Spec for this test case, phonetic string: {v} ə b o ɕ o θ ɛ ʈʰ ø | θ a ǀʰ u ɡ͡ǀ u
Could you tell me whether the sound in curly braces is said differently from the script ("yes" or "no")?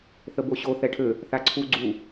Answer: yes